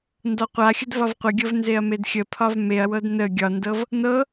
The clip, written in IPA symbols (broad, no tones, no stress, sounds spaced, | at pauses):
n d ɒ qʷ a xʲ ə d v ɒ v qʷ ə ɡʲ ɤ v n z e ɐ̯ m e d xʲ ə pʰ ɒ v m e ɐ̯ w ɤ d n ə ɡʲ ɒ n d ɤ v | n ɤ